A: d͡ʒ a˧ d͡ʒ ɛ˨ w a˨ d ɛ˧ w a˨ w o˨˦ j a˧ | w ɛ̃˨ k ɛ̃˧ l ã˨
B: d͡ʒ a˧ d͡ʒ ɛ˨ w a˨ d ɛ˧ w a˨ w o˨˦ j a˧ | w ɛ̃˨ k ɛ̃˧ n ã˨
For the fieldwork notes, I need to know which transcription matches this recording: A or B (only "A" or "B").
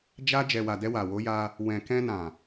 B